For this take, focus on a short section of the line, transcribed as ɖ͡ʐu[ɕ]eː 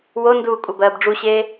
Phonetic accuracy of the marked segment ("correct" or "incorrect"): correct